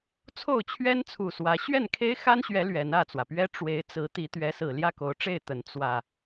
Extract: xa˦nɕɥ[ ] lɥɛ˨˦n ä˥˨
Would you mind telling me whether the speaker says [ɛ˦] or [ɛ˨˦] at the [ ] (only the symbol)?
ɛ˨˦